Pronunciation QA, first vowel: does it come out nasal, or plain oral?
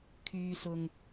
oral